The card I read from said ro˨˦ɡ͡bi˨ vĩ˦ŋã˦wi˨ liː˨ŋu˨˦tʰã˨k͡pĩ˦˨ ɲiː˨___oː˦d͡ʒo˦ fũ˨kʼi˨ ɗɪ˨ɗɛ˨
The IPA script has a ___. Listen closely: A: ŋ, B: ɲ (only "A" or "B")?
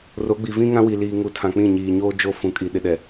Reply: B